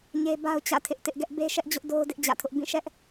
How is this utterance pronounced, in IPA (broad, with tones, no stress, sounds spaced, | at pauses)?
ɲ e˦ b a˦ ʊ̯ t͡ɕ ä̰˦˨ tʰ ɪ˦ ʔ t ɪ˦ ʔ ɡ ɛ˦ ʔ b e˦ ʃ ɛ˦ ʔ d͡ʑ ʊ˦ ʔ d o˦ ʊ̯ d ɪ˦ ʔ d͡ʑ ä̰˦˨ tʰ ʊ˦ ʔ b ĩ˦˨ ʃ ɛ˦ ʔ